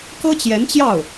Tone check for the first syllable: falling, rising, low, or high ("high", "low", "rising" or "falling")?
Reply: high